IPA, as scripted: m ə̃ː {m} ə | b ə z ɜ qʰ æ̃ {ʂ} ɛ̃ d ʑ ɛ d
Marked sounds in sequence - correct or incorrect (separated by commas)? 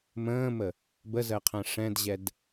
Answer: correct, correct